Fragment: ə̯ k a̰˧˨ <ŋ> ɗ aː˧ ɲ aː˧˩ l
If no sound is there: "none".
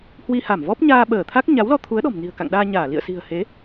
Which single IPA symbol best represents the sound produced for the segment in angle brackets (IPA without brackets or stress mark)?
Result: ŋ